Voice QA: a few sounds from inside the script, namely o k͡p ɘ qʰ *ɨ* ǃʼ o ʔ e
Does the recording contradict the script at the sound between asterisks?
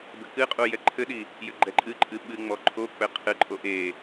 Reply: no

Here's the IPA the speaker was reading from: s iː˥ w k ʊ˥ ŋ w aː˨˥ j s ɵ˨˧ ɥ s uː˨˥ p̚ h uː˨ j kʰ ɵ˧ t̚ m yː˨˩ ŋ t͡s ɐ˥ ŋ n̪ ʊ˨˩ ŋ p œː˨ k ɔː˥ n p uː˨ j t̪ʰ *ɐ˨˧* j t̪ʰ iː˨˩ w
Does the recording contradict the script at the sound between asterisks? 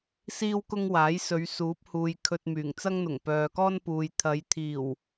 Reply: no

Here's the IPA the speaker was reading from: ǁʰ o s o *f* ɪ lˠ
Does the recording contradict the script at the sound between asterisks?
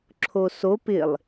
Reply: yes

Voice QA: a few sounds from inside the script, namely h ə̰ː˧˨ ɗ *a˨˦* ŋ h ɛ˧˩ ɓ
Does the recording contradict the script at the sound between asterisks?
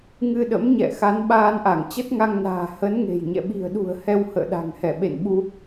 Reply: yes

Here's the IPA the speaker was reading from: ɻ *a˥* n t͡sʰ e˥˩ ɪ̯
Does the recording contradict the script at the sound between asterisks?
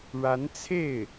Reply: yes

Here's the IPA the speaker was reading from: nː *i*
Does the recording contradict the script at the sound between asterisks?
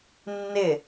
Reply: yes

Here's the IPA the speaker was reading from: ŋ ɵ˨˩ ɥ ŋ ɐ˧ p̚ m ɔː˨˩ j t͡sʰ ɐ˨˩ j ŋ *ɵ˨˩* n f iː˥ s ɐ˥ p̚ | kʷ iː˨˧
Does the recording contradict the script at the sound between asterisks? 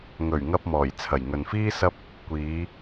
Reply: yes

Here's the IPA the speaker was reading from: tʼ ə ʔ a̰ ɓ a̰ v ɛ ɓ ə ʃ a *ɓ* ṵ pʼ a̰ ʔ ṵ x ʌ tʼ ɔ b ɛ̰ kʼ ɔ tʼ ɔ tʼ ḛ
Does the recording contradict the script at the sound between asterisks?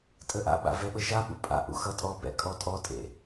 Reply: no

